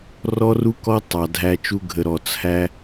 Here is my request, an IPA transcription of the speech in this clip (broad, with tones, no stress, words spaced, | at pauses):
rɔ˦ru˦kɔ˦ tˤɑ˨dʱæ˦t͡ʃu˦ ɡʱə˨ɾɔ˨ t͡sʰæ˦